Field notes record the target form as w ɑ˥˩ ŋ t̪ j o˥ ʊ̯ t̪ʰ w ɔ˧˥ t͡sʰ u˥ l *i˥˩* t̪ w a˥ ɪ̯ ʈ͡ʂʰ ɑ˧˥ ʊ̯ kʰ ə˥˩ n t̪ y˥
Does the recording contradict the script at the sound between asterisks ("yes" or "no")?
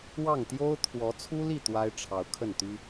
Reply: no